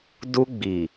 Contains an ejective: no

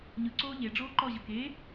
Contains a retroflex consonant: yes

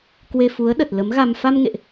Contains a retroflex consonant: no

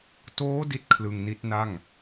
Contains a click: no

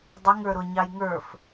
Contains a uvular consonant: no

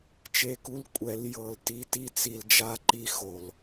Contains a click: yes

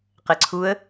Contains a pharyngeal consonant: no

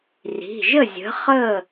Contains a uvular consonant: yes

